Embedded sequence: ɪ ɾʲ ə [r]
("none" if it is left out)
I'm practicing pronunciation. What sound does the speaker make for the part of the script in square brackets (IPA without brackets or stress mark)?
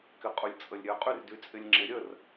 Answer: r